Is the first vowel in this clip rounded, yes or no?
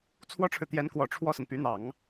yes